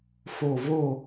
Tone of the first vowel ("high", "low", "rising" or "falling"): falling